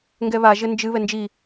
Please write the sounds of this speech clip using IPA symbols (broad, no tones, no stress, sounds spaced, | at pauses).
ŋ ɡ ɛ β a ʒ ɘ n d͡ʒ ɨ β ɛ n d͡ʒ i